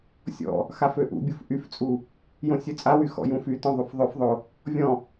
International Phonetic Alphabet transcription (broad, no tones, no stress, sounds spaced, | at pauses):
sʲ ɔ̰ | x a f ø ʔ ṵ bʲ u f ʔ y f t͡sʼ u | j õ sʲ ø t͡sʼ a w y x ɔ̰ j ũ f y t ɔ̃ ðˤ u f ðˤ ø f ðˤ o | vʲ ɔ̃